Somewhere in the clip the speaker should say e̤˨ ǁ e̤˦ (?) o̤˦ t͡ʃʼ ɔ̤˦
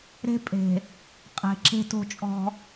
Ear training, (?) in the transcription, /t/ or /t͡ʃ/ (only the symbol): t